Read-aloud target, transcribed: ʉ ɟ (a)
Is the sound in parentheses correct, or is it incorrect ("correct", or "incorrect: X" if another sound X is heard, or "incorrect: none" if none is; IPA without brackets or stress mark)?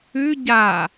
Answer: correct